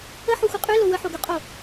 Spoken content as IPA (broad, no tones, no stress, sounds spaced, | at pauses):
ə ħ o xʷ ə qʼ y l o w ə ħ o ɡ y qʼ o